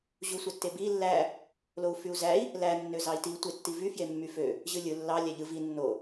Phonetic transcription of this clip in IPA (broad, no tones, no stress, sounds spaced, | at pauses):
ʑ u sʷ æ tː e b i lː æ | l o u̯ f y u̯ z æ i̯ | l æ nː ø z ɑ i̯ t i tʷ e tː i v y f j e mː y f ø | ʑ ɯ lʲ ɯ lː ɑ lʲ æ ʎ ɯ v i nː o